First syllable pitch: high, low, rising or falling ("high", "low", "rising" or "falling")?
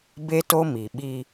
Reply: high